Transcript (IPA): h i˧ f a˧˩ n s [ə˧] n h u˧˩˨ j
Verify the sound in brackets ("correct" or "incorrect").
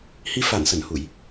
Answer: incorrect